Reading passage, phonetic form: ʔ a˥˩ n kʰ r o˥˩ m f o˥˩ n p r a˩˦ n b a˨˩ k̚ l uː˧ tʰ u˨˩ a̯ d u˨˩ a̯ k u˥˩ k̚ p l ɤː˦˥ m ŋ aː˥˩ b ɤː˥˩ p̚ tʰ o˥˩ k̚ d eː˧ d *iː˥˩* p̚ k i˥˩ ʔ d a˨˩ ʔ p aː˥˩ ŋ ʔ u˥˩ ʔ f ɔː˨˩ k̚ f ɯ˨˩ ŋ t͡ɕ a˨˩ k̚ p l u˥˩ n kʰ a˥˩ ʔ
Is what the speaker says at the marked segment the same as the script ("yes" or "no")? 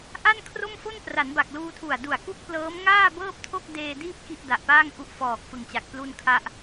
yes